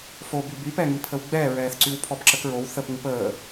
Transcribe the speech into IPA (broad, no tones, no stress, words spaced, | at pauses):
foby bypɛŋi pʰəwɡ͡bɛːɹɛːθ ǀywpʰɔbǁəkɹow θəp ŋupəː